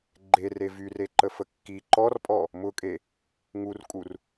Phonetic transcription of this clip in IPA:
ɡ͡ǃ e r e v y r e ǃ ə f ə kː i ǃ ɔ r pʼ ɔ | m ʊ kʼ e | ŋ u r kʼ u r

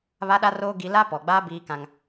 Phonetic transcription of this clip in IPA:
β a˦ ɗ a˦ r oː˦ ɡ i˦ l a˦ p ɔ˨ ɡ͡b aː˦ b iː˦ k ã˦ ŋ

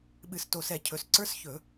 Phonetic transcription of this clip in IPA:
ɓ ɨ˧˩˧ s t o˨˩ s ɛ˧˩˧ cʰ ɵ˨˩ s ǀ ə˞˦˥ s ç ɵ˧˩˧

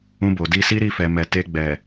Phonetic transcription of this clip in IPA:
ũ˧ b o˨ d i˧ s i˦ ɾ i˦˨ f ɛ˨ m ɛ˨ t e˧ ɡ͡b ɛ˨

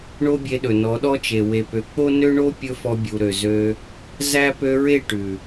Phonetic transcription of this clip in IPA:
ɳ o˦ bʲ e˧ ɗ ɵ˨ n ɔ˨˦ ɗ ɔ˦ t͡ʃ e˨ w e˨ p ø˨ k͡p o˦ n ø˦ ɳ o˦ pʲ ɵ˦ f ɔ˧ bʲ u˨ ɾ ø˨ z ø˧ | z æ˦ p ø˧ ɹ e˦˨ ʈ ʉ˨

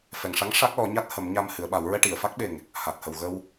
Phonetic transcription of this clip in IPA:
f ɛ˨˩ ŋ ʂ a˧˥ ŋ ʂ a˦˥ k̚ l ɔ˨˩˦ ɲ a˦˥ t̚ h ə˨˩˦ m ɲ a˧ m h ɨ˨˩˦ ə̯ ɓ a˨˩˦ w ɹ ɛ˧ ʈ i˨˩˨ ə̯ f a˦˥ k̚ ɓ e˨˩ ŋ | h a˨˩ t̚ h ə˨˩ w ɣ ə˧ w

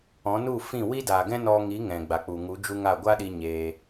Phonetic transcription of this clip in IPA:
ɔ̃˨˦ n u˦˨ f ĩ˦˨ w i˦ d a˨ ɡ ɛ̃˦ n ɔ˧ ŋ i˨˦ ŋ ɛ̃˨ ɡ͡b a˨ k͡p u˨ ŋ u˨˦ d͡ʒ u˦ ŋ a˦˨ ɡʷ a˦ ɗ i˧ ɲ eː˧

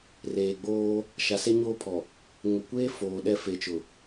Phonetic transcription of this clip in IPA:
r eː˨ ɡ͡b oː˦ | ʃ a˨ s e˦ ɲ oː˦ pʰ ɔ˨ | ŋ ʊ˨ kʷ eː˦ f oː˨ ɗ ɛ˦ f e˨ t͡ʃ ʊ˨

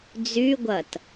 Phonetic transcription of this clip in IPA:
d͡z y ɡʷ ɐ t

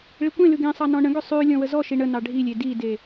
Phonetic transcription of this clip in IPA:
ɭ i kʷ ẽ l ʉ ɡ ẽ sˤ ɑ n ɔ̃ ɳ ə̃ ɡ ʏ sˤ ʉ lʲ ɔ̃ w ə z ɔ ʃ i ɳ ə n ɑ ɖʱ i lʲ e d i d e

